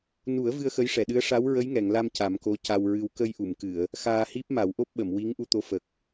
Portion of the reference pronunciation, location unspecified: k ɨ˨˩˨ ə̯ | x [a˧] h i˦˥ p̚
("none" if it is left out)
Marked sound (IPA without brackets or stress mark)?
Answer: aː˧